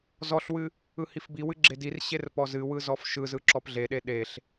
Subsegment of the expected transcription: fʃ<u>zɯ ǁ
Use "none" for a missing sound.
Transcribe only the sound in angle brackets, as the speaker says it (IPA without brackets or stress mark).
ɯ